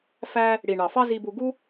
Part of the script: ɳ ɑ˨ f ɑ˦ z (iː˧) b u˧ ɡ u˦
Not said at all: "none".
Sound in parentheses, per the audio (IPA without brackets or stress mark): i˧